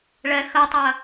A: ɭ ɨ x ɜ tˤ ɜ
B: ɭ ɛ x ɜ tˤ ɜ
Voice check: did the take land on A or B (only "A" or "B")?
B